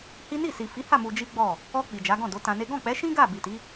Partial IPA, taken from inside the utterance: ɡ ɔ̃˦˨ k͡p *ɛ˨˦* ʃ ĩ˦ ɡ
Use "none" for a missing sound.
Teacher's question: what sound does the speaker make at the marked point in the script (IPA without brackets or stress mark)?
ɛ˨˦